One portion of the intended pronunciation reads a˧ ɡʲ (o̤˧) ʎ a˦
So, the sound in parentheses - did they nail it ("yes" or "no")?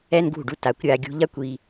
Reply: no